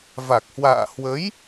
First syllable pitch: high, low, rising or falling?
low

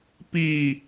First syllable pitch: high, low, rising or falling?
falling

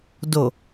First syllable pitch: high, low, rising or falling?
low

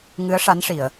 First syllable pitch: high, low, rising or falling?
rising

